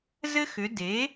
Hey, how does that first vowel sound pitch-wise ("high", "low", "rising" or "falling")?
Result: high